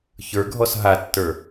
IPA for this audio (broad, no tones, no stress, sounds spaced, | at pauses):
ç ə˞ ɡʱ ɔ s ɦ a tː ə˞